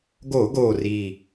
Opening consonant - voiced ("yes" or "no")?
yes